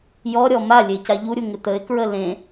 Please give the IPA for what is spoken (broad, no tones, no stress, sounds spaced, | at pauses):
j ɔ ɾʲ ɔ m a lʲ e c a ʎ u ɾʲ u ŋ ɪ t̪ ə ɪ̯ k ɹ ə l ẽ